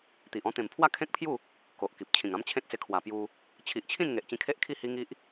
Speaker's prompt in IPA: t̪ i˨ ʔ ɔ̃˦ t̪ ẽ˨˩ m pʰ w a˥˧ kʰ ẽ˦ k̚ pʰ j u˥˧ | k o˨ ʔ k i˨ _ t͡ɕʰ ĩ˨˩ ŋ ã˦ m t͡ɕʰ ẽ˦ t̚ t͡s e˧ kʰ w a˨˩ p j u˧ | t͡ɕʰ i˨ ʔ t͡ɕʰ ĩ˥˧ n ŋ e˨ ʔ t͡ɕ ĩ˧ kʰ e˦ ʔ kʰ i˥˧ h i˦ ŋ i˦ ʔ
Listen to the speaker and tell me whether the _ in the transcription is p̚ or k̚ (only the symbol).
p̚